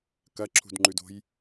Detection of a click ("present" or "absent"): present